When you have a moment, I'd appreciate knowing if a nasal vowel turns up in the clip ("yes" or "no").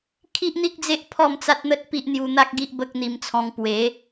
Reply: yes